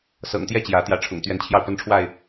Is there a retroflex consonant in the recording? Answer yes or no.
yes